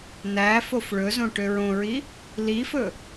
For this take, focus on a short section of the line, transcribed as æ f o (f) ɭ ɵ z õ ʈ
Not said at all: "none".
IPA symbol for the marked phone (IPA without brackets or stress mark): f